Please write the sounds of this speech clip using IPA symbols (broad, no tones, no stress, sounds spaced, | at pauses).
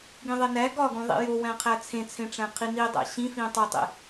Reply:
ɡ ĩ ðˤ e n æ ɡ ɒ ɡ ũ ðˤ ḭ j o w æ̃ qʰ æ t͡sʰ ẽ t͡sʰ ẽ ʈ͡ʂ æ̃ qʰ i n i dˤ æ̰ ɕ ĩ f ĩː tˤ o tˤ ḛ